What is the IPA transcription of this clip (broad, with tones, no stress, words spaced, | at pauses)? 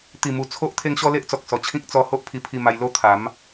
t̪i˨˩mu˨˩ t͡sʰo˦ʔ t̪ʰe˦ŋɕɔ˦le˦ʔt͡sɔ˨k̚ sɔ˨˩t͡ɕʰĩ˦k̚ t͡sɔ˧ ho˦ʔpʰi˧pʰi˧ma˧j lo˦t̪ʰa˨˦m